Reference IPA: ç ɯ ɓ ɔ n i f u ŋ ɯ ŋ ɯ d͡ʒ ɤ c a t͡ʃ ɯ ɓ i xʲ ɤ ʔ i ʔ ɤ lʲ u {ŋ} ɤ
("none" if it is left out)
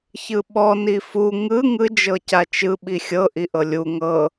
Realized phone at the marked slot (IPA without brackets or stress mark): ŋ